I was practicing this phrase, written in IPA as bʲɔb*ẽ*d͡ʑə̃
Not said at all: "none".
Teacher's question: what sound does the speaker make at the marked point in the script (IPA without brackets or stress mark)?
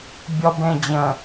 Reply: ẽ